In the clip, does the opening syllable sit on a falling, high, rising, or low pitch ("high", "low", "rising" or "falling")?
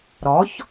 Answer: rising